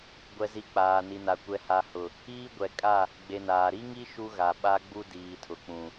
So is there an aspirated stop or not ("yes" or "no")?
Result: yes